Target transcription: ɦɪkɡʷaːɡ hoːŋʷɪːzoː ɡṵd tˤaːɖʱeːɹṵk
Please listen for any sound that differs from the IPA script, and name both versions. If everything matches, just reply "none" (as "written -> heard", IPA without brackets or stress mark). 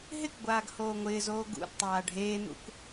ɹ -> n̪